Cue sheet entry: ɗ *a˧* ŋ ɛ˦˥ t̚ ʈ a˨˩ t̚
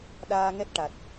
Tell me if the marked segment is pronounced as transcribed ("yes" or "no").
no